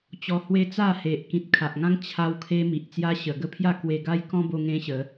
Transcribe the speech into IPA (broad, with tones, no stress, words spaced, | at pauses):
t͡ɕɔ˧hwe˦ t͡sa˥˧he˨ʔ kĩ˨t̚kʰa˨ʔŋã˦ŋ t͡ɕʰa˦wkʰe˦ mi˨ʔt͡sja˦ ɕə˨˩ɡə˦pʰja˥˧ kwe˧ɡa˦jkɔ̃˦ bo˦ŋẽ˦ɕə˨˦